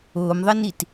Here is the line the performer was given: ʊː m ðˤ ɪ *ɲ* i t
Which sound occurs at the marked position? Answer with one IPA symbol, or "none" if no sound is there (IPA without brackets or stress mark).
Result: n